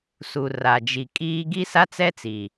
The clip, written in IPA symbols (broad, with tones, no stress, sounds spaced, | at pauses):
s u˨ r a˨ d͡ʒ i˨ kʼ iː˦ ɡ i˦ s a˦ t͡s ɛ˦ t͡s i˨